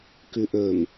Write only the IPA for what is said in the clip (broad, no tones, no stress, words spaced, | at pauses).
kʉʔɵm